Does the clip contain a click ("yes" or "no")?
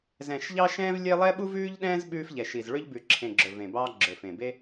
yes